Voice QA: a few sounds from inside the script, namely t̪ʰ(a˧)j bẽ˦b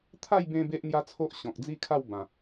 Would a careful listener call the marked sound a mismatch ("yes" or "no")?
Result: yes